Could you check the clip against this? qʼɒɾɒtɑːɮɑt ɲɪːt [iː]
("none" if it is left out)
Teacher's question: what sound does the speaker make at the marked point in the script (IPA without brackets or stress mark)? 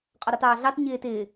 ɪː